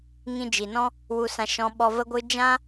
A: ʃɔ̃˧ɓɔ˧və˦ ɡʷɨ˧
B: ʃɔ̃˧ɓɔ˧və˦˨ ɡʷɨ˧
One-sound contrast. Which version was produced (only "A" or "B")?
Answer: A